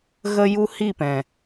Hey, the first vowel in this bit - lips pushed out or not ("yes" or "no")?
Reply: no